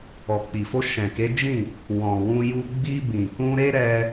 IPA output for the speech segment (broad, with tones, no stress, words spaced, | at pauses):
ɔ˨k͡pi˨fo˧ ʃɛ̃˨ke˨˦d͡ʒĩ˦˨ | wɔ̃˨wũ˧ ju˧ ɡ͡bi˧ bĩ˨ kũ˧ɾe˦ ɾɛ˧